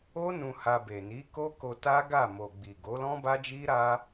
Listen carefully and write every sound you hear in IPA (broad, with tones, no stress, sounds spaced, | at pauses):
o˦ n ũ˧ h a˧ b e˨ n i˨˦ k o˦ k o˧ t a˦ ɡ a˦˨ m o˨ ɡ͡b i˨ ɡ o˨˦ l ɔ̃˦ b a˦ d͡ʒ i˦ ɾ a˦